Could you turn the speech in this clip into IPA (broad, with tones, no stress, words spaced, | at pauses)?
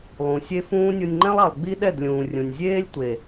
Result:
lˠũ˨sʲe˦fũː˦ nʲo˧nʲŋ͡ǃɛ̃˦lˠa˨lˠ ɡ͡bi˦ɗɛ˦˨d lʲũː˨rʲũ˨nʲzʲeː˦lʲ tʷe˨